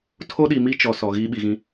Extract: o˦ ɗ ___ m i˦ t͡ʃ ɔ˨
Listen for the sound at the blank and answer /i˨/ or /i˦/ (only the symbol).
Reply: i˨